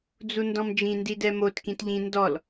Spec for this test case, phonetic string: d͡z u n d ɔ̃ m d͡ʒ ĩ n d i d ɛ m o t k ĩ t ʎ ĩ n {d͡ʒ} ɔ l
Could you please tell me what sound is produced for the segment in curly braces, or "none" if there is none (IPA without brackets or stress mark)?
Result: d